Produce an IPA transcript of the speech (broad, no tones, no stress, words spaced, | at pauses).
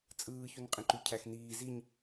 t͡sʼɯː çunqʼẽǃy cʰæxniː ziɲ